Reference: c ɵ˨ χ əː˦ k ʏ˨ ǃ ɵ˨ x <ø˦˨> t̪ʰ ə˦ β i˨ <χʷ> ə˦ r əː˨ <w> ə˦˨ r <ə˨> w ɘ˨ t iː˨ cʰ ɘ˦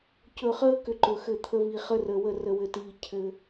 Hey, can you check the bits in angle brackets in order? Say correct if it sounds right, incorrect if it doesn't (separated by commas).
incorrect, incorrect, correct, correct